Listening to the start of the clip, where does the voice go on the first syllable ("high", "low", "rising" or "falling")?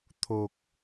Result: low